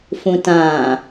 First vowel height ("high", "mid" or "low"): high